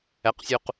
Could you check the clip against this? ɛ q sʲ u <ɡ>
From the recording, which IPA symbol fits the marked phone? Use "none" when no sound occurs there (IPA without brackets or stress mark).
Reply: q